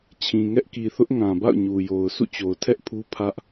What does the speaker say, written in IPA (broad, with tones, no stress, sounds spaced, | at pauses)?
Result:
t͡ɕʰ ĩ˨ ŋ ɛ˦ ʔ k i˨ θ ʊ˦ ʔ ŋ ã˨ b a̰˦˨ ʊ̯ ɲ u˨ j o˨ ʊ̯ sʰ ṵ˦˨ t͡ɕ o˨ ʊ̯ tʰ ɛ˦ ʔ pʰ u˦ pʰ ä˦ ʔ